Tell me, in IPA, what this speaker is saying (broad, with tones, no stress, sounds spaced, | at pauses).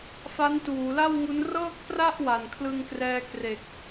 f a˦˥ n t uː˩˦ l a˥˩ w ŋ u˦˥ n r ɤː˥˩ k̚ p r a˥˩ ʔ w a˨˩ n kʰ l ɯ˧ ŋ k r ɛː˧ k r e˨˩ k̚